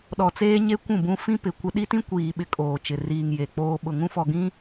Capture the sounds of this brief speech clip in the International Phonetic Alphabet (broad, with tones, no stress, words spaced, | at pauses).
ɗɔ˨t͡seː˦ɲe˦ kʷũ˦˨bũ˦ fĩ˦pɪ˨ kʷɪ˦ ɗi˦tĩ˦kʷiː˨ ɓɪ˦kʼoː˨t͡ʃɪ˨ riː˨ŋ je˨ k͡poː˨ ɓʊ˨ŋũ˦fɔ˨ ɡĩ˦